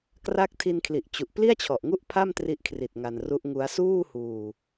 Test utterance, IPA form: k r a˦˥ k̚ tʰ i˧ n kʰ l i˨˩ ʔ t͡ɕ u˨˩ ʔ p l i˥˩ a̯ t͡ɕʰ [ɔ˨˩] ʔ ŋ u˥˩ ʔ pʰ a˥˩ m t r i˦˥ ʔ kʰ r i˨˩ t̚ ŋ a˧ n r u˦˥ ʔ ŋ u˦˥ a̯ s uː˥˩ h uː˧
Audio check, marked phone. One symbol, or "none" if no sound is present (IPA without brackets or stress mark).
ɔ˨˩